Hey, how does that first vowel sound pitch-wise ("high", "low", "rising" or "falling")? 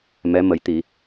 rising